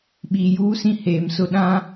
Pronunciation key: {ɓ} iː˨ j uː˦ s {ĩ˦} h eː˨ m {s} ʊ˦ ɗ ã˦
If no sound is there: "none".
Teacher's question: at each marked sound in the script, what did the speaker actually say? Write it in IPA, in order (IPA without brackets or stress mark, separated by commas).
ɓ, ĩ˦, s